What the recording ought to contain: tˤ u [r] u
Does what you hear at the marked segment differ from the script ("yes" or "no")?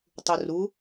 no